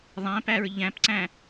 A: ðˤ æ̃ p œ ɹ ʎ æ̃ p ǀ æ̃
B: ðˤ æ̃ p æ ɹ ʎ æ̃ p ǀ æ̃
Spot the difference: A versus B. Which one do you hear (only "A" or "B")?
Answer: B